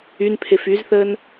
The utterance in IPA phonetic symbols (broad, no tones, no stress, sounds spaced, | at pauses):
y n pʰ e f y z θ əː n